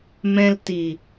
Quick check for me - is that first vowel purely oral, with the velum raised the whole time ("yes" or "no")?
no